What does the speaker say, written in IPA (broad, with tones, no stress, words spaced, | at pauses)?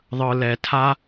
ðˤɯ˨lɛ˨tʰa˦